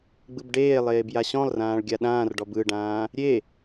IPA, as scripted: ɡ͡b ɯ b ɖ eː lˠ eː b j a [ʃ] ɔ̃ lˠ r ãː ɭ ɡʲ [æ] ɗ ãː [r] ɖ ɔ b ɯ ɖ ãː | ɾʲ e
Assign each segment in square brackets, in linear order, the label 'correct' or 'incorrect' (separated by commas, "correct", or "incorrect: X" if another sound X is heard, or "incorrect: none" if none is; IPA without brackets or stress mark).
incorrect: ɕ, incorrect: a, correct